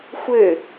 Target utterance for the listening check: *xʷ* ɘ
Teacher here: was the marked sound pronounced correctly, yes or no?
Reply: yes